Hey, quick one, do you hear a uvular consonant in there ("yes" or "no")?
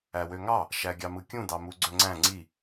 no